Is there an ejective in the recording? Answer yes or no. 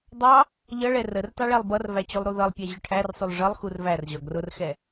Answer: no